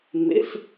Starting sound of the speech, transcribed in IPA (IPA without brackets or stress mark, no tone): m